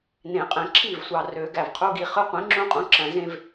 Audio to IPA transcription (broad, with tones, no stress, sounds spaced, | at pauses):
n ẽ˨˩˦ qʼ ẽ˨ ǁʰ i˥˩ v sʷ ɑ˨ r ø˨˩˦ ɡ æ˨ v qʰ u˦˥ ɡ i˨ χ ɯ˦˥ qʷ ĩ˩˥ ŋ͡ǁ ũ˦˥ qʼ ũ˩˥ ǁ æ̃˨ z ẽ˥˧ v